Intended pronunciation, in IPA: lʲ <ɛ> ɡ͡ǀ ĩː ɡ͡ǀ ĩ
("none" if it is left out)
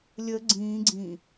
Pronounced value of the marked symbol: ə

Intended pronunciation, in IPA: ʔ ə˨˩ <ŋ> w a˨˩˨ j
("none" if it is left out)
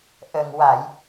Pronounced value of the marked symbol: ŋ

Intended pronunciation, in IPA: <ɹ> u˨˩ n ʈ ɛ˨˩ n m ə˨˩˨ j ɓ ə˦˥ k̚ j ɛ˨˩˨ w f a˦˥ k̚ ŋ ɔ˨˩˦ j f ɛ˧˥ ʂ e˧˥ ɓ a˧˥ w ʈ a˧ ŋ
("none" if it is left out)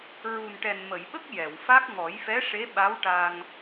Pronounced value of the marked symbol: ɹ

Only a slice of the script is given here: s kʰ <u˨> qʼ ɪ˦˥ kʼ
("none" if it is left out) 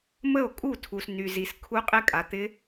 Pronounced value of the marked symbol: u˦˥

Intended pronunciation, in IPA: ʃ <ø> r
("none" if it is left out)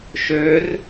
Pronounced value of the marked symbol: ø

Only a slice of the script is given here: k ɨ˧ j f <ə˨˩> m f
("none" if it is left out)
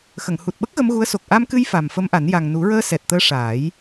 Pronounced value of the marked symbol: a˨˩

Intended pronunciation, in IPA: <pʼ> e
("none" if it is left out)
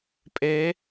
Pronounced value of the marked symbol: pʼ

